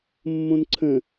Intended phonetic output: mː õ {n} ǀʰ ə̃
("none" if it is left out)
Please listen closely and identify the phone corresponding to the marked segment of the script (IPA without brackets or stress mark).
n